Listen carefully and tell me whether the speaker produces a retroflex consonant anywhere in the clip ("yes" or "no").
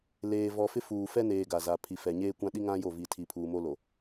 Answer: no